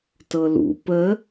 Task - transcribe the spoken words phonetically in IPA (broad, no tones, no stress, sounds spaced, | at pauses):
t ɤ l ṵ p ə